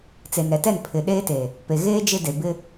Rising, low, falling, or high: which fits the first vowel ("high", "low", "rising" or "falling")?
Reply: low